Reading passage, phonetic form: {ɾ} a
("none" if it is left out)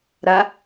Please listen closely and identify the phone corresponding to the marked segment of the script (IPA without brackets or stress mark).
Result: ɾ